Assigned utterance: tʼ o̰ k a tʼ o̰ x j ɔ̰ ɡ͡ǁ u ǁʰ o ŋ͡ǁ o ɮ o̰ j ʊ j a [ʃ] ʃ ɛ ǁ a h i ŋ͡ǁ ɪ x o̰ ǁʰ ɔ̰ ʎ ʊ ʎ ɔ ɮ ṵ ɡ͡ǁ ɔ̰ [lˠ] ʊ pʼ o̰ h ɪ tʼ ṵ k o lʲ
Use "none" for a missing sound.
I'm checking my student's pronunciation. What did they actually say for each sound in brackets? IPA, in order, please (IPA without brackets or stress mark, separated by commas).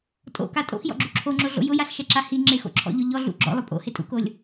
ɬ, lˠ